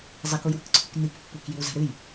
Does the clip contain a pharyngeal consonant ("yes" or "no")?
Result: no